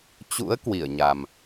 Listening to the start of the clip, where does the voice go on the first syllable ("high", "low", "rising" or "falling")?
rising